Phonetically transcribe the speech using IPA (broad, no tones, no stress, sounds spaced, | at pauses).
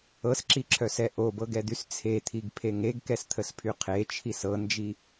ɤ s ǁ i ǁʰ œ s ɛ ʔ o b ɤ ɡ ɛ d̪ y s t͡sʰ e t̪ʰ i ɡ pʰ e ŋ e ɡ k ɛ s t̪ʰ ə s pʰ y qʰ e t͡ʃʰ i s ɤ n d͡ʒ i